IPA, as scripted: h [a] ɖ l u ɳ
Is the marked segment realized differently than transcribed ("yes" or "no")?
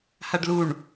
no